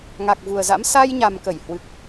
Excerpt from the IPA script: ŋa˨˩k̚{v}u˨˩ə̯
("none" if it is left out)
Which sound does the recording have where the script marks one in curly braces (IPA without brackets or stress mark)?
v